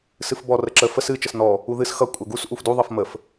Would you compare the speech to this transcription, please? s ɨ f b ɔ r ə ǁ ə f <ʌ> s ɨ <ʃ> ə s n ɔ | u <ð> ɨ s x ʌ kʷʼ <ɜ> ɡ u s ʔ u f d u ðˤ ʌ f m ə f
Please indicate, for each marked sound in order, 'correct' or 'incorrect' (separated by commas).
incorrect, incorrect, correct, correct